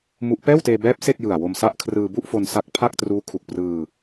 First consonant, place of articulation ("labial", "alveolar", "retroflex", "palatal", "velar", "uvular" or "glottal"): labial